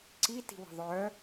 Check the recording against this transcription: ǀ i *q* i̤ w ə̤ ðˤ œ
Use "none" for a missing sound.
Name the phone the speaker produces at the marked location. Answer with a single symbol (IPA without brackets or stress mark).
t